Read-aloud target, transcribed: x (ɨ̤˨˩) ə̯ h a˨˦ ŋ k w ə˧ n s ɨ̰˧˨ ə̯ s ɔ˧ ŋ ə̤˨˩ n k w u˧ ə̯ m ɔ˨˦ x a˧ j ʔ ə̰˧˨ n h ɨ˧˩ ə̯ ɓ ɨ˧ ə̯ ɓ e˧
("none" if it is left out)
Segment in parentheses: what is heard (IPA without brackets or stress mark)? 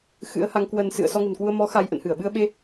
ɨ̰˧˥